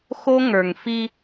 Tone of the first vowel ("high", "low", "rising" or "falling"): high